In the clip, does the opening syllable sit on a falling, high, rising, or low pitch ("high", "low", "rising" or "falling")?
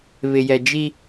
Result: low